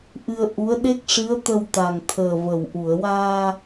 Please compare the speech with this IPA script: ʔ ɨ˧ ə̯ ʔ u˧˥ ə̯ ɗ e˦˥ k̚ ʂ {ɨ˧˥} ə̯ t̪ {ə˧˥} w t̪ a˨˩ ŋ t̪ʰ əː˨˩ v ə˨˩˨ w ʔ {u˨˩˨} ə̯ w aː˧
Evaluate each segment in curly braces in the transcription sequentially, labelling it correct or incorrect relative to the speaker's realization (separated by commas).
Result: correct, incorrect, correct